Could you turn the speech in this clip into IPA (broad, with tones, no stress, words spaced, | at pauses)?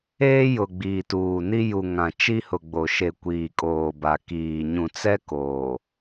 eː˦jʊ˨ ɡ͡biː˨tuː˨ni˦ ju˨ ŋã˨ t͡ʃi˦hʊ˨ ɡ͡bo˨ ʃe˨ kʷiː˨kʼoː˨ba˨ kiː˨ ɲũ˨t͡sɛ˦ koː˨